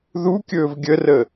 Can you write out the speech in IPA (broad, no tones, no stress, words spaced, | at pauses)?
ðukʲɵːv ɡʲərə